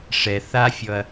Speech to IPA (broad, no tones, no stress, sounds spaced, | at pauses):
ʂ ɛ θ a fʲ ɔ ɐ̯